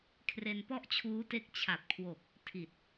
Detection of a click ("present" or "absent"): absent